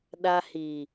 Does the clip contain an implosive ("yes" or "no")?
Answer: yes